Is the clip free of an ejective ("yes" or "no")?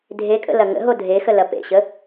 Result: no